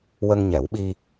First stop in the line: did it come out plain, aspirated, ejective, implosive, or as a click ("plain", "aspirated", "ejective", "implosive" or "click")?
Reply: implosive